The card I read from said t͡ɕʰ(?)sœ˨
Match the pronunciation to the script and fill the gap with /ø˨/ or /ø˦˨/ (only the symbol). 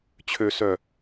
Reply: ø˨